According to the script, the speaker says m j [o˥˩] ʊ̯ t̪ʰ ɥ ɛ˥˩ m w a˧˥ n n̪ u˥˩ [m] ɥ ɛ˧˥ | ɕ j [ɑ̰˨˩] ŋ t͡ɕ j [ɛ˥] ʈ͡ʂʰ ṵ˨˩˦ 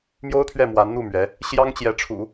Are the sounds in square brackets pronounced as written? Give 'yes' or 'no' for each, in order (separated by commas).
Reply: no, yes, no, no